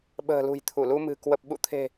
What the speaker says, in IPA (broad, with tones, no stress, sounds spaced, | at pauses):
ɓ ə̤ː˨˩ l ṳ˨˩ j t̪ʰ u˧˩ l u˧ m ɨ̤˨˩ k w ə˨˩ p̚ ɓ ṵ˧˨ t̪ʰ e̤˨˩